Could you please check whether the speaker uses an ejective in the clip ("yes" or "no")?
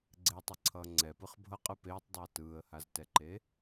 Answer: yes